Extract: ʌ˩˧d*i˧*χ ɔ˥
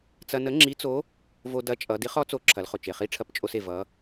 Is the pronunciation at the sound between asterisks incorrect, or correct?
incorrect: i˧˥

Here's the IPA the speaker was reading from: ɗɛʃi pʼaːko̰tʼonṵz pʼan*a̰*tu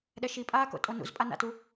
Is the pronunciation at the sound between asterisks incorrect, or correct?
correct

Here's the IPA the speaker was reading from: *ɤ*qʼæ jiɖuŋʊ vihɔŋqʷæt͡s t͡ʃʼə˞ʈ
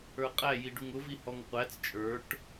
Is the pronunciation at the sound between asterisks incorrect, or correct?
incorrect: ə˞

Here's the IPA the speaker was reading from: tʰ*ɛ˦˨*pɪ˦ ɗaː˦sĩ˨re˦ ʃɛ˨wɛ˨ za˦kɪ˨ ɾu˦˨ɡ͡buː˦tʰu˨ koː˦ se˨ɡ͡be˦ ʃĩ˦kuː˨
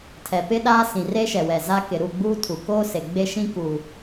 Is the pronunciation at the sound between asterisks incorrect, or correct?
incorrect: ɛ˨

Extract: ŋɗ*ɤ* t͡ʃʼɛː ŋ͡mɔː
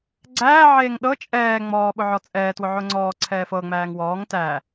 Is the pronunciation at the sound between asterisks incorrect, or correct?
correct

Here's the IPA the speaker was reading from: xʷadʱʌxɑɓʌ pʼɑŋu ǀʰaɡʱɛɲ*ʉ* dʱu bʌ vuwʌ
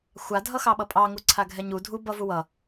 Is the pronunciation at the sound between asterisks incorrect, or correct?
incorrect: u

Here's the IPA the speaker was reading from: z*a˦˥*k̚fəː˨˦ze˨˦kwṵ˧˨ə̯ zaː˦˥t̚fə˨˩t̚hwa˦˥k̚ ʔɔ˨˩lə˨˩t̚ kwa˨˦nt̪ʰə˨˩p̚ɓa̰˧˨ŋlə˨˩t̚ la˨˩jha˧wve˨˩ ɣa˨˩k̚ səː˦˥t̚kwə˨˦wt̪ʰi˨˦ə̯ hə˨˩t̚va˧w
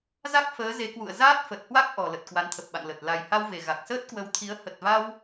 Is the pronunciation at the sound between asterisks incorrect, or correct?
correct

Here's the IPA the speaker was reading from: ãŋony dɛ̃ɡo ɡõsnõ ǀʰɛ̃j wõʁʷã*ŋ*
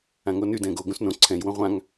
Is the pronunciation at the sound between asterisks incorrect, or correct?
correct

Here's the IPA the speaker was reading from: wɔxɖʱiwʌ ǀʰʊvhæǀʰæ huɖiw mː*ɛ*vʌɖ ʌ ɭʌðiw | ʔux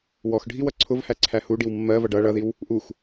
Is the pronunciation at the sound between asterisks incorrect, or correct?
incorrect: ɜ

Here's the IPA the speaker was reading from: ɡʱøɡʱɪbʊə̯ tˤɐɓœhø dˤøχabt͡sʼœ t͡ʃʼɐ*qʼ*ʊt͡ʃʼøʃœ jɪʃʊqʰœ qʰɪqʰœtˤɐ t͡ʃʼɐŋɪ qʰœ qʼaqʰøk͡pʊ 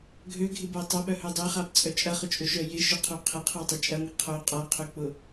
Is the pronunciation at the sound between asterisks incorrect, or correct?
incorrect: χ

